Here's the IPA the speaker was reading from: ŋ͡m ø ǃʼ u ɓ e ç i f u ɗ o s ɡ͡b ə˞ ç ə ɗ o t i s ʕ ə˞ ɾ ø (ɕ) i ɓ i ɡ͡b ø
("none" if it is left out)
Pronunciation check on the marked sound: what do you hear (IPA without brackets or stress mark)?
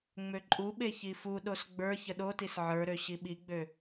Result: ɕ